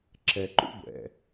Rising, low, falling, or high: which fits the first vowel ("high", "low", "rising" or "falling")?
low